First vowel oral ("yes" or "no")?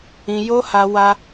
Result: no